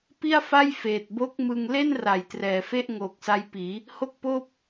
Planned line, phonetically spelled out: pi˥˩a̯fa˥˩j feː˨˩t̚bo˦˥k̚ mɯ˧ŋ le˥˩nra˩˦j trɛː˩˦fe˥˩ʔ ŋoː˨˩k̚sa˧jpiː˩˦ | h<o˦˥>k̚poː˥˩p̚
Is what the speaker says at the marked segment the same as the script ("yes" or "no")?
no